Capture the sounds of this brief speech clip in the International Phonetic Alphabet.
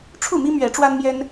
ʈ͡ʂʰ u˥˨ m i˦ m ɥ ɛ˨˦ ʈ͡ʂ w a˦ n m j ɛ˦ n

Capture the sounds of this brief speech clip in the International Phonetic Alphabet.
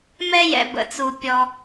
m ɛ˧ j ɛ̰˩ b ə̰˩ t͡s u˩ pʲ ɔ˩

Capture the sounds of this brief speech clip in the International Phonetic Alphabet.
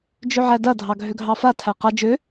d͡ʒ ø ʕ æ d ɐ dʱ ɑ ɡʱ ø ɡʱ ɑ f a tʰ æ q ɐ d͡ʒ ø

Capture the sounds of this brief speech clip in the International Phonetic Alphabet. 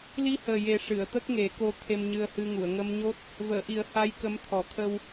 l i˧ h əː˨˩ j e˨˩ ʂ ɨ˨˩˨ ə̯ t̪ ə˦˥ k̚ ŋ e˨˩˦ k o˧ t̪ʰ e˧ m ɲ ɨ˧ ə̯ h ɨ˧ ŋ u˨˩˨ ə̯ ŋ ə˧ m ɲ o˦˥ t̚ | v əː˨˩˨ ʔ i˨˩˦ ə̯ h a˧˥ j k ə˧˥ m t̪ʰ ɔ˨˩˦ t̪ʰ ə˧ w

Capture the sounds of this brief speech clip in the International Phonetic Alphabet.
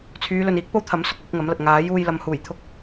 t͡sʰ yː˨˧ l ɵ˨ n iː˨˥ k̚ p o˥ w t̪ʰ ɐ˨˥ m s ʊ˨ k̚ l ɪ˨˥ k̚ ŋ ɐ˨˥ m l ɐ˨ t̚ ŋ aː˨˥ j uː˧ j l ɐ˨˧ m h uː˨˩ j t̪ʰ ʊ˧ k̚

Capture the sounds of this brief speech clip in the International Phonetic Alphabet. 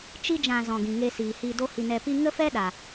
t͡ʃ i˦ d͡ʒ ã˧ z ɔ̃˨ ɡ ĩ˨ ŋ e˧ s iː˨ h iː˧ d o˦ h i˧ n ɛ˧ p i˦ ŋ ə˦ f ɛ˦ ɗ a˨

